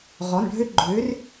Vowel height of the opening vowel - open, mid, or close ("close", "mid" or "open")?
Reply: mid